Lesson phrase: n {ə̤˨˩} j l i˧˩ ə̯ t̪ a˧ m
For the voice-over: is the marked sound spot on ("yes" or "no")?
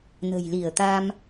yes